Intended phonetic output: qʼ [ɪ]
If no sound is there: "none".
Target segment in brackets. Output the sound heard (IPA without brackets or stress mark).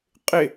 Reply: ɪ